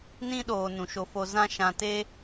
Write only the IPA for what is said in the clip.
nĩ˦ɗoː˨ nũ˨ʃo˧fo˧ zã˦ ʃã˧te˦

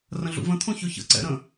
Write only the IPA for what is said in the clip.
rə̃ɮṵvə̃t̪ʰõ çɵçə̰ǀɛ̰ ɾə̃

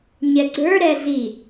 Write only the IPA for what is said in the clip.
ɲɛɡ͡ǀə˞ɾɛ ɮi

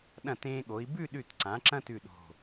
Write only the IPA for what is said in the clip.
ɗɐ̃˧˩tẽː˧ɠo˩˧i̯ bʉ˥˧ɗʉ˧˩t ǀã˩˧ ǁɐ̃˥tʉ˧˩ ɗo̤˧˩

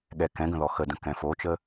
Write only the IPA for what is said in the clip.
ɠɛkɛ̃ɡə̃ ðɔxədə̃ kɛ̃fot͡ʃə

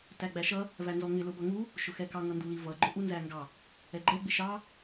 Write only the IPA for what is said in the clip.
tæɡ͡bæʃʌ | vænzɔŋɪ lʊbʌŋu | ʃʊxɛkɑ ŋʌndulivʌ ɡ͡ǃʊʔu nzæŋɡɑ | ɛɡ͡ǃɛ ɡ͡bɪʃɑ

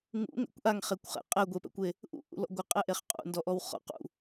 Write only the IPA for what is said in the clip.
ŋṵŋɛ̰kʷ ʔaŋχekʷχɛ̰ qʼɛɡʷepɛ̰kʷe | ʔṵʔṵ lɔ̰ɡʷɪqʼɛʔeχ qʼṵndɔʔɔw χɔ̰qṵ

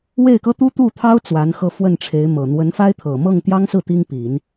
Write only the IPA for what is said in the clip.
we˥˩ɪ̯kɤ˥ t̪u˥t̪u˥˩t̪ʰɑ˥ʊ̯ t͡swa˧˥nxɤ˥˧fwə˥˩nʈ͡ʂʰe˧˥ɪ̯ mɤ˨˩ n̪wə˧˥nfa˥ɪ̯t̪ʰɤ˨˩ mɤ˥˩ŋt̪jɑ˥ŋsɹ̩˥˩ t̪i˥ŋ pi˨˩˦n

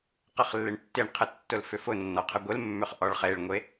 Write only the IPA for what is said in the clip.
qəχlːɪɳtːɪɳqʰə tːʊlfʏfʊnːɔ qʰəɡʷɪlmːʏχ ʔɔɭχeɭŋʷe

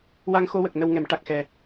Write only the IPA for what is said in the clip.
wa˧ŋxo˧wə˨˩k̚ nə˧wŋɛ˨˩˦mʈa˨˩k̚xɛ˨˩

